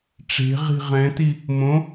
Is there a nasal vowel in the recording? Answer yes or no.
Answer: yes